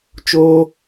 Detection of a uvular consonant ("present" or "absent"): absent